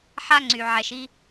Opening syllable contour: high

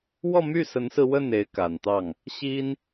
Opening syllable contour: falling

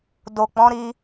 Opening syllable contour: low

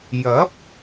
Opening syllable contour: rising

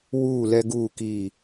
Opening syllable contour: falling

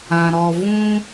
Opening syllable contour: low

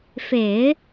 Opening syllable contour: low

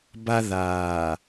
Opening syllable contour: high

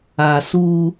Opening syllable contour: low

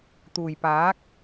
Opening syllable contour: low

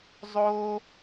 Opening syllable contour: high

